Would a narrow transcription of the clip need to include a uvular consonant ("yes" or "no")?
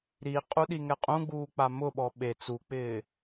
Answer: yes